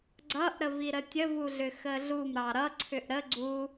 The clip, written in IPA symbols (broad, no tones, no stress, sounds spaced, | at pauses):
ɡ͡ǀ ʌ ʔ ɾ ə v i ɾ ə tʲ ə v u ɮ ʏ x ə ɮ u m ɾ ɑ ɾ ʌ ǀʰ ʏ ʔ ɾ ə ɡ͡ǀ u